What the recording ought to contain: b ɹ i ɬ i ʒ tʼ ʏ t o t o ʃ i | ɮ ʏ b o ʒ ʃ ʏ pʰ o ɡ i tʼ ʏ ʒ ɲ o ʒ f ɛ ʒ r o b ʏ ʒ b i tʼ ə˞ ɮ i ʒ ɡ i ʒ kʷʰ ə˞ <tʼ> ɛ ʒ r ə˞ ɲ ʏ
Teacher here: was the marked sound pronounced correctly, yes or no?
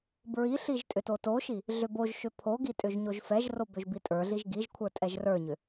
yes